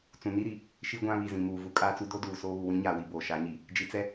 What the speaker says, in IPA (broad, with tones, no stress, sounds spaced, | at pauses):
t͡s ũ˨ n i˦ ɾ i˨ | ʃ i˦ ɡʷ ã˦ β i˨ z ĩ˨ m uː˨ v u˦ kʼ aː˦ t͡s u˦ d o˦ d uː˨ s oː˦ β u˨ w ĩ˨˦ ɲ aː˨ w i˨ b oː˨ ʃ a˨˦ ɲ i˨ | d͡ʒ i˨ t͡s ɛ˦